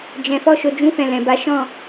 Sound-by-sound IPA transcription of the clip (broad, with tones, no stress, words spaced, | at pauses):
d͡ʒɛ̃˨ fɔ˧ʃo˨ d͡ʒũ˧fɛ̃˨ lɛ̃˨ba˨˦ ʃɔ̃˦˨